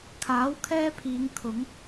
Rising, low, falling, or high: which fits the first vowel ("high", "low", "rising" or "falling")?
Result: rising